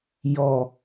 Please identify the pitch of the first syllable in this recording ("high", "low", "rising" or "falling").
low